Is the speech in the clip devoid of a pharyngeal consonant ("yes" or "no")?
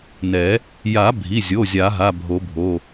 yes